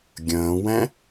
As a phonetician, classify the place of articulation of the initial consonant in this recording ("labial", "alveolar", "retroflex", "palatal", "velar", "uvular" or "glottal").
velar